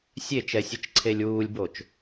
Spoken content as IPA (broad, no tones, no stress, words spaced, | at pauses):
sʲet͡ʃɛsʲɯt͡ʃǀʰelʲ wuːlʲbot͡ʃ